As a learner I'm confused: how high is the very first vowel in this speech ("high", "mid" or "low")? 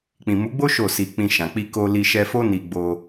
high